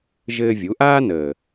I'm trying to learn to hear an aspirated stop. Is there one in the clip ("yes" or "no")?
no